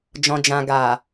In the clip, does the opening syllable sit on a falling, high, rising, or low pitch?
low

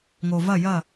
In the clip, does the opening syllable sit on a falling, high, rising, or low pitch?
low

